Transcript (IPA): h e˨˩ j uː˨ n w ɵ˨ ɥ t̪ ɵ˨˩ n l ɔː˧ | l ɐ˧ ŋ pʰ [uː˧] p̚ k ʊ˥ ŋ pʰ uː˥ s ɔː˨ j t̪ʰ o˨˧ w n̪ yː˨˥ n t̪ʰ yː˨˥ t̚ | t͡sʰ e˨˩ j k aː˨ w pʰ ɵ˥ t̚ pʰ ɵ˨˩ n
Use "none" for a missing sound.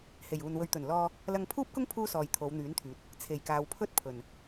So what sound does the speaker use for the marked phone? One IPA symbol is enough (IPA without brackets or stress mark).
uː˥